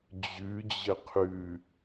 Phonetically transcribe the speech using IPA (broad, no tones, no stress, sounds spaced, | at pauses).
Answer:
d͡ʑ ʉ d͡ʑ ə qʰ ʉ